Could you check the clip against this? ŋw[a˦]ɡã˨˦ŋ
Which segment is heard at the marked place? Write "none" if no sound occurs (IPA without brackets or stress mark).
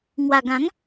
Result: a˨˩